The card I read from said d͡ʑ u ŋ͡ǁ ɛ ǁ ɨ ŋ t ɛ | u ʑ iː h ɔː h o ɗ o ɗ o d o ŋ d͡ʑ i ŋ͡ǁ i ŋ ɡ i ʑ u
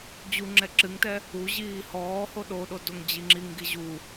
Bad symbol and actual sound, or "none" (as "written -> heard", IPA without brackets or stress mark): none